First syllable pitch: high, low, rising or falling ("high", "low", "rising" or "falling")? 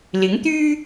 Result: rising